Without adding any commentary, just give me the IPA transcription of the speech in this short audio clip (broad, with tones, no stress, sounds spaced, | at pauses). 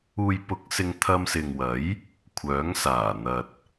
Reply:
uː˨ j p ʊ˨˥ k̚ s ɪ˧ ŋ t̪ʰ ɐ˧ m s ɪ˨ ŋ w ɐ˨˥ j | kʷʰ œː˨˥ ŋ s aː˨˩ n̪ ɐ˨ t̚